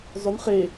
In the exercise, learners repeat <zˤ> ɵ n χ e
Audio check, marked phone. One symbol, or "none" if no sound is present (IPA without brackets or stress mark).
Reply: zˤ